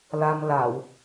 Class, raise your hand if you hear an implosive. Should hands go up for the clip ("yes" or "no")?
no